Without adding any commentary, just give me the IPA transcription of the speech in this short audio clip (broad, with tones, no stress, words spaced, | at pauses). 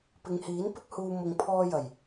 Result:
pɪ˨˧ŋhiː˨˥npɪ˥k̚huː˧ mʊ˧ŋ pʰɔː˧jɐ˨˩j